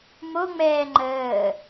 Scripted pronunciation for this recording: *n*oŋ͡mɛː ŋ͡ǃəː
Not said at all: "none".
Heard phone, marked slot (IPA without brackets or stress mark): m